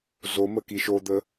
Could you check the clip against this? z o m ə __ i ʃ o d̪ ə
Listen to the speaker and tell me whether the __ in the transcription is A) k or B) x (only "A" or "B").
A